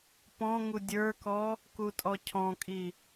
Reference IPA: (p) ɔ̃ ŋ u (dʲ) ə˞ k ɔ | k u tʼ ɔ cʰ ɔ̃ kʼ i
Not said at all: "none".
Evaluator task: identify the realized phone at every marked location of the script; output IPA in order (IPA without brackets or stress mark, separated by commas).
p, dʲ